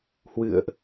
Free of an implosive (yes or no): yes